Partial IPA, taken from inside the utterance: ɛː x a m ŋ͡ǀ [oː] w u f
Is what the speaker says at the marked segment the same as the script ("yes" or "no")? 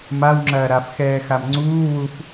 no